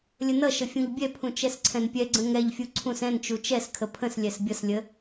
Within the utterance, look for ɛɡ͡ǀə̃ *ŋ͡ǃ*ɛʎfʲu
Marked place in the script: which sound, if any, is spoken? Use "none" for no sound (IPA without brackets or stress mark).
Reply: ŋ